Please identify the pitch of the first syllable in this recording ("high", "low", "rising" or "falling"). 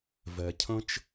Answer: low